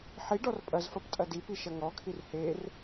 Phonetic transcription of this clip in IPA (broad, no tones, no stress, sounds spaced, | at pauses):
ħ i ɖ ɔ r pʼ ɐ z f ɐ p tʼ ɐ d i p i ʃ ɐ ŋ ɔ kʰ i r h e r